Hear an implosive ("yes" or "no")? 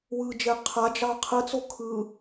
no